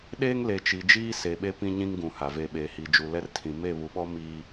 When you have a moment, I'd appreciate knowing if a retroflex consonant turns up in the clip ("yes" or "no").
no